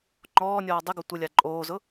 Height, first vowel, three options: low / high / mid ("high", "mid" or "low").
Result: mid